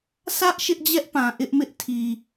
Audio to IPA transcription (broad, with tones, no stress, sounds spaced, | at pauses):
s ä˦ ʔ ʃ ɪ˦ ʔ d͡ʑ ɛ˦ ʔ p ã˨ ʔ ɪ˦ ʔ m ɪ˦ ʔ tʰ i˨